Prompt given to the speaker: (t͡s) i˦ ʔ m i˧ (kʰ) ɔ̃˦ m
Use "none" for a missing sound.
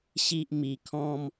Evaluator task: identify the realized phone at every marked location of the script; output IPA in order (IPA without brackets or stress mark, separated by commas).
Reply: ɕ, kʰ